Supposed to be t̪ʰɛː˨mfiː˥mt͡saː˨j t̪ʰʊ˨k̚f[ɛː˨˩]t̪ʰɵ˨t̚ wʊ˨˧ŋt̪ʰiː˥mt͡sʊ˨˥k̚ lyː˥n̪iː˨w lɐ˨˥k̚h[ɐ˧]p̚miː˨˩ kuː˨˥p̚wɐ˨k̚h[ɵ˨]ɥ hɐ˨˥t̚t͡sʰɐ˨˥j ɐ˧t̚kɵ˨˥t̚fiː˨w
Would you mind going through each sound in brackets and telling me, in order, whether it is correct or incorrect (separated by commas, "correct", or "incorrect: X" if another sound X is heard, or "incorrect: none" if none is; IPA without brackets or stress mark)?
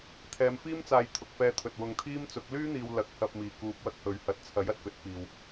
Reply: incorrect: ɛː˧, correct, correct